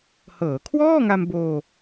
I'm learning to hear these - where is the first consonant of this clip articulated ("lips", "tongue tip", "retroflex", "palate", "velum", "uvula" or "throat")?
throat